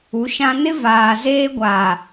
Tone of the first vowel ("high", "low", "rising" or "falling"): rising